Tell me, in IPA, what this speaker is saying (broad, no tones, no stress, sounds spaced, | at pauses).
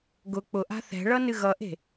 ɡ ʊ k͡p ʊ ʔ a̤ θ ɛ̤ ɭ ʌ n ɨ ɣ ʌ ʔ e̤